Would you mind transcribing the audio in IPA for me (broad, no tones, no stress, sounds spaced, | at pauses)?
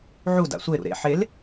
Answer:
ʕ u d a̰ sʷ e ɾ ṵ ɾ ḛ ħ e l